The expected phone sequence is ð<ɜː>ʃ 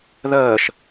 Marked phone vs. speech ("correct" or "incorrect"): correct